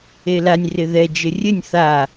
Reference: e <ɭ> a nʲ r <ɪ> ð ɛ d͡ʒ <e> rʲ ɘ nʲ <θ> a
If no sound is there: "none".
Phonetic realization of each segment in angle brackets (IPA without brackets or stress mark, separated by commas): l, ɪ, ɘ, θ